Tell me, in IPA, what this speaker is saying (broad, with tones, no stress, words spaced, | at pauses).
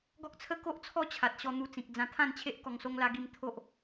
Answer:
ɡɔ˦k̚t͡sʰə˦ ko˦ʔt͡sʰɔ˥˧ t͡ɕʰa˨t̚ɕɔ˧ n̪u˧t͡sĩ˨k̚ d͡zã˧t̪ʰã˥˧nt͡ɕʰe˦ʔ kɔ˧ŋso˦ŋla˦ɡi˥˧m t̪ʰo˦ʔ